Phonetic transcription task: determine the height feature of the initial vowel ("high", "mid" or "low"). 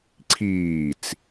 high